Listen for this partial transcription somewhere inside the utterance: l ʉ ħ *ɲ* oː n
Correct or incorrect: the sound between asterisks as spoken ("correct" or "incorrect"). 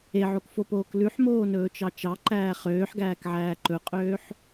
incorrect